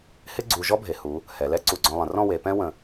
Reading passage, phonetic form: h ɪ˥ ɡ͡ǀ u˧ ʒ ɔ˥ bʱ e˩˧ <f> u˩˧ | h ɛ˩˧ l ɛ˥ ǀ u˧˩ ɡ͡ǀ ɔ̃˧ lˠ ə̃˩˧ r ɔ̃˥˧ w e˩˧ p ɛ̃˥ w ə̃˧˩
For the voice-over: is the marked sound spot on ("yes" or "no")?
no